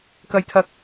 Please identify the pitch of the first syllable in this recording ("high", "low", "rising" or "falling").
high